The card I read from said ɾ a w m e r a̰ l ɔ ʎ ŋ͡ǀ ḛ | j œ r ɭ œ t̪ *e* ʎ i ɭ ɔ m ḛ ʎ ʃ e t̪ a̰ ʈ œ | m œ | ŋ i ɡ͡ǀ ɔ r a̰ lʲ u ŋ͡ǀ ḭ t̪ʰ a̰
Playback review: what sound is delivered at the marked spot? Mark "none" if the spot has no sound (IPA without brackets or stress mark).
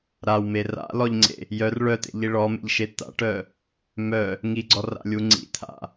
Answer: ḛ